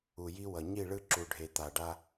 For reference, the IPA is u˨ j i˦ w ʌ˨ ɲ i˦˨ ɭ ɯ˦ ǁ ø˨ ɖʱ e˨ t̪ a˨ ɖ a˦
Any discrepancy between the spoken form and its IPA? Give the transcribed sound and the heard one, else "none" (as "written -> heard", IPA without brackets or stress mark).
ø˨ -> u˨